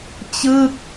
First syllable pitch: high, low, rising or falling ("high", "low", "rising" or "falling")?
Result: falling